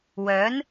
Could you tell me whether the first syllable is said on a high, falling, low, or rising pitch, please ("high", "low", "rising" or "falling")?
rising